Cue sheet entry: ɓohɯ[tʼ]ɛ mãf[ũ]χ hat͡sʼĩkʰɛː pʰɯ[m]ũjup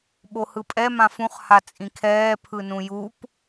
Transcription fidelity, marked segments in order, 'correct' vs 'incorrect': incorrect: pʼ, correct, incorrect: n

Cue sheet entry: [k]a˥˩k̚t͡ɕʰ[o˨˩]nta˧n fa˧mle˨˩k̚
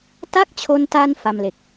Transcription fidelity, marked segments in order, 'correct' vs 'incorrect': incorrect: t, incorrect: o˧

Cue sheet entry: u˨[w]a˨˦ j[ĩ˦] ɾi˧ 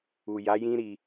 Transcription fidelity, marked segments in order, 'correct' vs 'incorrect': incorrect: j, correct

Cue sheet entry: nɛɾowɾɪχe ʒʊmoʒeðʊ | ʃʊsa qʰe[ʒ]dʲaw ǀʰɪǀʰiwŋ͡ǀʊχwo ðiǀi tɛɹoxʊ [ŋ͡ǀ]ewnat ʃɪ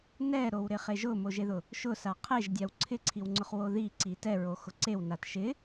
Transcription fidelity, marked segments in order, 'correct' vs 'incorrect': correct, incorrect: ǀ

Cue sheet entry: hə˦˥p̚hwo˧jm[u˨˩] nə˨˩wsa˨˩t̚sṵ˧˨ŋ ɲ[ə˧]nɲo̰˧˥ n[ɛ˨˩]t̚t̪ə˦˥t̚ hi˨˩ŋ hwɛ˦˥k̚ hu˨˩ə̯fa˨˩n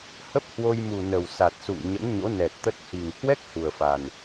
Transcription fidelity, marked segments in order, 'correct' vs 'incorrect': correct, incorrect: ə̰˧˥, correct

